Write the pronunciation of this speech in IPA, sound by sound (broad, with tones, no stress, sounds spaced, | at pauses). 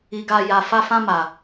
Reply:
i˨ ɡ a˨ j a˨ f a˧ f ã˧ m a˨